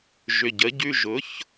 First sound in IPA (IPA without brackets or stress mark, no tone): ʒ